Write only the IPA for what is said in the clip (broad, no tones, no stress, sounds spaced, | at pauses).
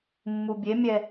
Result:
mː u bʲ e mʲ ɛ